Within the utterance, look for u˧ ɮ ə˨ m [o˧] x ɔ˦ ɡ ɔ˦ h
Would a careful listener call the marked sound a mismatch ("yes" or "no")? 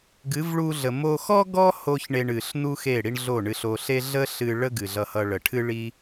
no